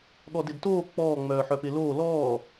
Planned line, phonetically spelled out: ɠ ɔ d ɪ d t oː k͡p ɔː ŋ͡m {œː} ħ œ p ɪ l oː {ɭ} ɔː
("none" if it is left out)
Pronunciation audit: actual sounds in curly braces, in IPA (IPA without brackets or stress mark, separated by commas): œː, l